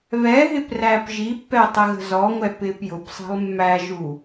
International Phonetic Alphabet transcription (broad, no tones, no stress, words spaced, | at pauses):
βɛɦɪ præːpʒipːɛ tˤəɣə̤zɔŋʷɛ pɪːpjʊpsˤi̤lˠ mːæʒu